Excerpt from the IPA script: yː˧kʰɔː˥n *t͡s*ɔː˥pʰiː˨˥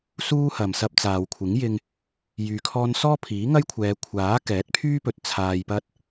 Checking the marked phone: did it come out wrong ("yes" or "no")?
yes